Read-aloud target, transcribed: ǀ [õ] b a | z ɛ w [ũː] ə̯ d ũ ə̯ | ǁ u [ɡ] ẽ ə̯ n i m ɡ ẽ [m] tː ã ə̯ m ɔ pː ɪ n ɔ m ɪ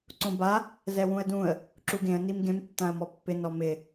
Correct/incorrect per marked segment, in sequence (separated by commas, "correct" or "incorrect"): correct, incorrect, correct, correct